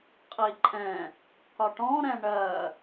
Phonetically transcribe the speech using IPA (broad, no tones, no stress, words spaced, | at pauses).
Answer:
qʼiǃʼɛ̃ | kɒʈɔ̃ ɾɛ̃ɳɜ